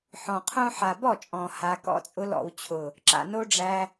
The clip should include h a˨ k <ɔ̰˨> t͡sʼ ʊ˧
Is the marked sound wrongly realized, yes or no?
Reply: yes